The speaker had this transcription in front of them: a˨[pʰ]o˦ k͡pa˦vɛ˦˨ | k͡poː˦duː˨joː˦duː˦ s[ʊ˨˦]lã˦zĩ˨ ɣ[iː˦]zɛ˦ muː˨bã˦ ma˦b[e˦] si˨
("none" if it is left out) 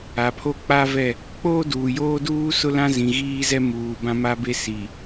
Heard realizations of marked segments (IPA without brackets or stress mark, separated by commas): pʰ, ʊ˦, iː˦, e˦